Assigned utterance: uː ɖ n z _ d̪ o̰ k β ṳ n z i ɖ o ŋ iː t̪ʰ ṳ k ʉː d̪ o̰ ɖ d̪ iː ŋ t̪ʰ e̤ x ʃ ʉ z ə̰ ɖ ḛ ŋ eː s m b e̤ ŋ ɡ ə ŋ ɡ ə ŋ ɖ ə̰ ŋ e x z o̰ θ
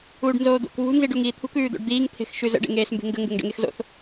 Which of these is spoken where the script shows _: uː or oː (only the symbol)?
oː